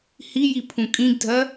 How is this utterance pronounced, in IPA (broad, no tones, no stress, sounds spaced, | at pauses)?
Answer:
h i j i pʰ ũ kʼ ĩ ɡ dʱ ɜ